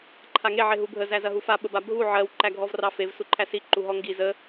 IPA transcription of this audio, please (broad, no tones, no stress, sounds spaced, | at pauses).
ǃʰ a ŋ e ʕ e ɦ u bʱ ə z æ z ɐ ɦ u f a ɓ ə b a bʱ u ʕ ɜ w ǃ æ ɡʱ ɔ v r ɑ f e v s u ǃʰ æ s i ǃ u ɦ ɔ ŋ ɡ i z ə